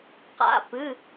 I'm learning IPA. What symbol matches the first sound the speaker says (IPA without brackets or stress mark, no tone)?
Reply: q